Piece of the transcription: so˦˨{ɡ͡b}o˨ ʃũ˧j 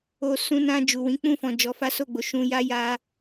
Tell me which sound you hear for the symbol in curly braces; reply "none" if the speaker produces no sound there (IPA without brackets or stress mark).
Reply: ɡ͡b